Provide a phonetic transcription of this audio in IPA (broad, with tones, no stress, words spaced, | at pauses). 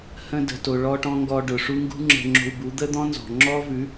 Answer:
hə̃˦ də̤˧to˧ɭɔ˦ʈɔ̃˦ ŋɡɔ˧ɖʊ˨ʂu˦ ŋɡṳ˦ŋ͡ǁə̤˧ŋ͡ǁo̤˧w bu˨˦d̪ə˦d̪ɔ̃˦ nzɔ̤˨ŋ͡ǁɔ˦vʉ˨˦